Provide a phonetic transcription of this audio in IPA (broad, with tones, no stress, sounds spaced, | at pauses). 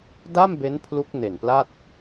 d aː˥˩ m b e˦˥ n pʰ l u˦˥ k̚ n e˨˩ n p l a˥˩ t̚